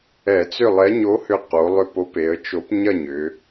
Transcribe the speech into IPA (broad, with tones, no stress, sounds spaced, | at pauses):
ɛ˧˩˧ t͡s ʏ˥˨ lˠ ɛ˨˥ ɲ o˨˥ h ʏ˧˩ q o˩˧ lˠ ʏ˧˩ p o˨˥ p e˩˧ ə̯ t͡ʃ o˨˥ p ɲ ɐ˥˨ ɲ ʏ˩˧